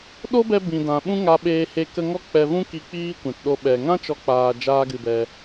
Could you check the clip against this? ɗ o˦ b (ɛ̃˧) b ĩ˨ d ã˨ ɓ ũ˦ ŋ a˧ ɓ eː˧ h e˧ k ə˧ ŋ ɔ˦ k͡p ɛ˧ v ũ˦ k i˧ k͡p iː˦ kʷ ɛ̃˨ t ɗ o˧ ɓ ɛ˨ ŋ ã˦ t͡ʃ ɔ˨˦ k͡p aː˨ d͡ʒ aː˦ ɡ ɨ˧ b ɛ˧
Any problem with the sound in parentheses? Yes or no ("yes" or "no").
yes